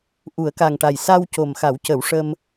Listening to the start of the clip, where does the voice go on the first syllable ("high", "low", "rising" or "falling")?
low